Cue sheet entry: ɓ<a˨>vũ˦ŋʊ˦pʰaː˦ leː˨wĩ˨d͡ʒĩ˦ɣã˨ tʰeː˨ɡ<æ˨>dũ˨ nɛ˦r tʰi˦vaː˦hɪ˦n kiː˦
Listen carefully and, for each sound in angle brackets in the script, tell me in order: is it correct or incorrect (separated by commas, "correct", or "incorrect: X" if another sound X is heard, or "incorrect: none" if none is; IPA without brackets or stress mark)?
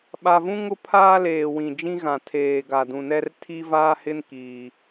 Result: correct, incorrect: a˨